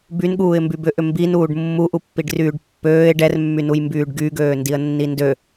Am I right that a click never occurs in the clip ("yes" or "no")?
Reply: yes